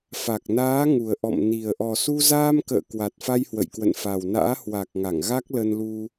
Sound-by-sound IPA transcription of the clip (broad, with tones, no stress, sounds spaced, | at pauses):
f a˨˩ k̚ n aː˨˦ ŋ u˨˩ ə̯ ʔ ɔ̰˧˨ m n i˨˩ ə̯ ʔ ɔ˨˩ s u˧ z aː˧ m k ə̰ː˧˨ k w a˨˩ t̚ f a˧ j h w ə̰˧˨ j k w ə̰˧˨ n f a˨˩ w n a̰ː˧˥ h w a˨˩ k̚ ŋ a˧˩ ŋ ɣ a˦˥ k̚ l ə˧ n l u˧